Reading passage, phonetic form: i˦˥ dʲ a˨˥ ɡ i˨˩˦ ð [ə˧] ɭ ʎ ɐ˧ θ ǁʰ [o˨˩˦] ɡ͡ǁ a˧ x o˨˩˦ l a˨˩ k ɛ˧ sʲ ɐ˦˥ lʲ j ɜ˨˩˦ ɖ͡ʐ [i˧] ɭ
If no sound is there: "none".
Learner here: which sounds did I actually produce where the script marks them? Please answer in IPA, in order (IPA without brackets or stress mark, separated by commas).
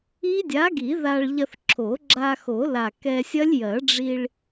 a˧, o˨˩˦, i˧